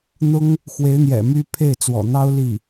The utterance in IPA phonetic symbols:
n̪ ʊ˥ ŋ | x w e˧˥ ɪ̯ n̪ j ɛ̰˨˩ m y˥ pʰ e˥˩ ɪ̯ t͡s w ɔ̰˨˩ n̪ ɑ˥ ʊ̯ l i˥˩

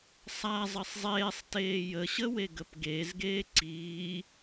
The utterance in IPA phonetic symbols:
sˤ a zˤ ɘ sˤ zˤ eː sˤ t eː j ə ɕ ə w e ɡ ə p ɡ e z ɡ eː ǀ iː

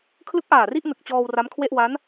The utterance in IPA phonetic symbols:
kʰ l ɯ˦˥ k̚ ʔ aː˨˩ r i˥˩ ʔ n ɯ˨˩ k̚ t͡ɕ ɔː˧ w r a˦˥ m kʰ w e˥˩ ʔ w a˦˥ n

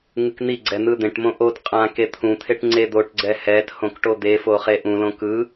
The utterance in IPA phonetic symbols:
ŋ ɯ k n̪ i ɡ͡ǀ ɛ n̪ ɯ d̪ ẽ ʈ m õ ʔ o t qʼ ã k e t̪ʰ ũ t̪ʰ e ʈ ŋ͡ǀ e d̪ o ʈ ɡ͡ǀ ɛ h ɛ t h õ k ʈ o d̪ e f o χ e ʔ ũ l õ k ɯ

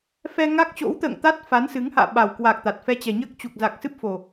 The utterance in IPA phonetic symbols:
f ɛ˧ ŋ a˦˥ k̚ t͡ɕ o̰˧˥ w t̪ ə̰ː˧˨ ŋ t̪ a˦˥ t̚ f a˨˦ n s ɨ˨˦ ŋ h a̰ː˧˨ ɓ a˨˩ w k w a˨˩ k̚ t̪ a˨˩ t̚ f ɛ˧ t͡ɕ ɛ˨˩ ɲ əː˦˥ k̚ t͡ɕ u˨˩ k̚ z a˨˩ k̚ s ɨ˦˥ p̚ f o˨˩

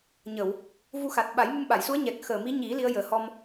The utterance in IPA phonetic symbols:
ɲ ə˨˩˨ w | v u˧ x a˨˩ t̚ ɓ a˨˩˦ j m u˧ m ɓ a˨˩˨ j s u˧˥ ə̯ ɲ ɛ˨˩ k̚ x əː˨˩ m i˧˥ ɲ i˨˩˦ l i˧˥ ə̯ j əː˨˩ h ɔ˧ m

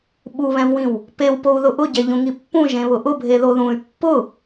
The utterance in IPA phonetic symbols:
ɓ u β ɛ̃ v w ĩ w | p e w p o u̯ ð ʊ ʔ ʊ ɟ ɛ ʎ ũ ŋ i pː ũ ʒ ẽ β ʊ ʔ ʊ bʱ e ð o ð ũ y̯ pː ʊ

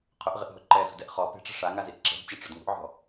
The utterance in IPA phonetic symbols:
qʰ ʊ ʔ ʁ ɪ ʔ ɦ ʊ ǃ ɛ z ṳ d ɛ ʔ χ ɔ p e̤ ʈ͡ʂ ɛ̤ ʂ a ŋ a z i ʔ ǁ ɛ̤ d t͡ɕ a ʈ͡ʂ ʊ d ŋ ṳ ʔ ʕ ɔ̤

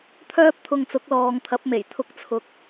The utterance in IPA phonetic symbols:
t̪ʰ œː˥ p̚ t̪ʰ ʊ˧ ŋ t͡s ʊ˨˥ k̚ l ɔː˨ ŋ t̪ʰ ɐ˨˥ p̚ m e˨˩ j t̪ʰ ʊ˧ k̚ t͡sʰ ʊ˨ k̚

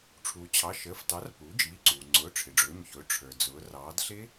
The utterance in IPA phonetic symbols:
ʈ͡ʂʰ uː˩ t͡ɕʰ ɑ˩˧˩ ʃ əː˩˧˩ f t ɑ˩˥ r p uː˩˥ d͡ʒ iː˩˧˩ ǀ uː˩ ŋ͡ǀ ʊː˩˧˩ ʈ͡ʂʰ ɪ˩ ɖ͡ʐ ʊː˩˧˩ ɲ ç ʊː˩˥ ʈ͡ʂʰ ə˞˩ d͡z ʊː˩˧ r ɑː˩˧ d ɬ ɪ˦˥

